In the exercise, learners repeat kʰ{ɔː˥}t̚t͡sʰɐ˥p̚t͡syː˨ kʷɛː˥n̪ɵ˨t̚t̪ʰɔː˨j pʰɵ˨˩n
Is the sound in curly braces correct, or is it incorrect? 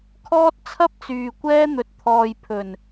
correct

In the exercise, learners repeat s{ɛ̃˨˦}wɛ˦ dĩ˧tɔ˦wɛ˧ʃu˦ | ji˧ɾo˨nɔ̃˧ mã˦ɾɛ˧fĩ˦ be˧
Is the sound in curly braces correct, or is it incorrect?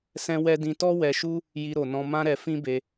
incorrect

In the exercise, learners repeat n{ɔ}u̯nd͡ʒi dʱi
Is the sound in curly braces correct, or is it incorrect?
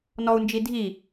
correct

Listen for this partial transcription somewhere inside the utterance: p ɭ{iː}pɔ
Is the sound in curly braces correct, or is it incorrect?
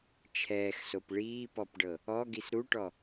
correct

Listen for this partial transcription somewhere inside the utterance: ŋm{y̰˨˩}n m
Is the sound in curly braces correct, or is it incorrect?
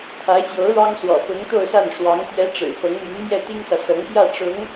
incorrect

